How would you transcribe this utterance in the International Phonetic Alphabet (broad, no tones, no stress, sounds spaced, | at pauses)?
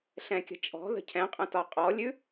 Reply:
ɬ ɛ̃ kʲ ə̤ t͡ʃʼ ɔ̤ ð ə̤ cʰ ɛ̃ qʼ ə̃ t ɒ qʼ ɔ lʲ ʉ